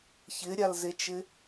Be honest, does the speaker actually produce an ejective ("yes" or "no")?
no